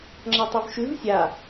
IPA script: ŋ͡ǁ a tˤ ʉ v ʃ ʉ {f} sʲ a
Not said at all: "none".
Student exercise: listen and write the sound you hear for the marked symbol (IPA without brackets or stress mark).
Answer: v